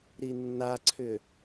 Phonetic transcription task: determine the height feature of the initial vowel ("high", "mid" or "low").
high